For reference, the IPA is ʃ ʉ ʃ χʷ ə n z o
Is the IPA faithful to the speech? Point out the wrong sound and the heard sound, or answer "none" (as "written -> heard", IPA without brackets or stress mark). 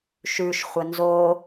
none